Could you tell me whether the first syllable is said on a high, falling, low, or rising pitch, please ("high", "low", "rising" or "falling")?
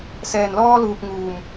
low